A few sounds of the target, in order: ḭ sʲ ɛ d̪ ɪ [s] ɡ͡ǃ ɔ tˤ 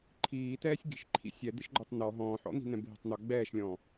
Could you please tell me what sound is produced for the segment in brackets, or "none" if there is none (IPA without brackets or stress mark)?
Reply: ʃ